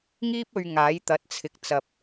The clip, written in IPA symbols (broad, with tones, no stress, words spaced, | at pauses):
ŋiː˥p̚ɵ˧ɥ ŋaː˨˥jt̪ɐ˨˥t̚t͡sʰɪ˨k̚ t͡sɐ˨p̚